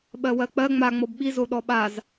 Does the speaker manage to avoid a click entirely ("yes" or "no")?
yes